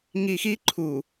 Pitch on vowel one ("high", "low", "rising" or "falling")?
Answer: low